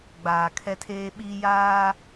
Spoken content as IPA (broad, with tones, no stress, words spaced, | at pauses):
ɡ͡baː˨ kʰɛ˦tʰeː˦ ɓiː˦ jaː˦